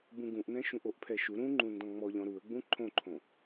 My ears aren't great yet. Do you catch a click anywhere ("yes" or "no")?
yes